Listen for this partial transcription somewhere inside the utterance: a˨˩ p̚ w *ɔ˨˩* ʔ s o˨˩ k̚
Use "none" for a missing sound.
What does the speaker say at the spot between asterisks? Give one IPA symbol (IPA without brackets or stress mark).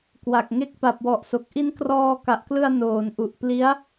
ɔ˨˩